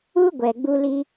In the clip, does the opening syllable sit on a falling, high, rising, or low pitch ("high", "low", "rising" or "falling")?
high